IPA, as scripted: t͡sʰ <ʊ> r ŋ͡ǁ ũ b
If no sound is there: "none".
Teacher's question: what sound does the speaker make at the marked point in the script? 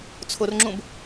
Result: ʊ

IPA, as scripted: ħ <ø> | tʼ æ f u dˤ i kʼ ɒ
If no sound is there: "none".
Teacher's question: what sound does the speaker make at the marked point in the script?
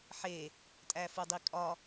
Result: e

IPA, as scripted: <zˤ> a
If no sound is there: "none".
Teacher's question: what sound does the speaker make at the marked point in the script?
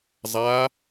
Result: zˤ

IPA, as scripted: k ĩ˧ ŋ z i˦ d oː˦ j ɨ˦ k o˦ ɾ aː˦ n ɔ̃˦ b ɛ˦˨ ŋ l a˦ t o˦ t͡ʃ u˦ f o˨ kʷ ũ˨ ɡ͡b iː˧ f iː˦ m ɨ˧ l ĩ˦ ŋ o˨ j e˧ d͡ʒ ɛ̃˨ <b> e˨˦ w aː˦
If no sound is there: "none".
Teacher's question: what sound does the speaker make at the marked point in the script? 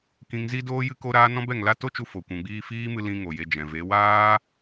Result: v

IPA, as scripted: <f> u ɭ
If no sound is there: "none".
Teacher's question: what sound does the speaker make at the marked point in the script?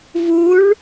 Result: v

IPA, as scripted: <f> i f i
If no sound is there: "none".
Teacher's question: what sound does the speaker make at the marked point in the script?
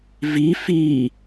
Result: v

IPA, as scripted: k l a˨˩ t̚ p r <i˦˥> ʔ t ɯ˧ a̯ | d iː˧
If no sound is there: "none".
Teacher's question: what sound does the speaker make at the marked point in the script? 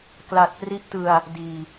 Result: i˦˥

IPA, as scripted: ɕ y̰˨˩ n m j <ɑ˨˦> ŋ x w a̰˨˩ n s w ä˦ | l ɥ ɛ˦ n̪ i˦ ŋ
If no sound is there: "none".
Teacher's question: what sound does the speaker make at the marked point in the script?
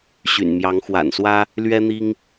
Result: ɑ˨˦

